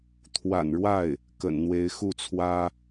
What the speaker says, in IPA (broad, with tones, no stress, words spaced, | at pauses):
t̪ʰwa̰˨˩nɻwa˥˩ɪ̯ | kə̰˨˩nn̪we˧˥ɪ̯ xu˥˩t͡sʰwä˥